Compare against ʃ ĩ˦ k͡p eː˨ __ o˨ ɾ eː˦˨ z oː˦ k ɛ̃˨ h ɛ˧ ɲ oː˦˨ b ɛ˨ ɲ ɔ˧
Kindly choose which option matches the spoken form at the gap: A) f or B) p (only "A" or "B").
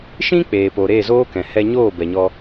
B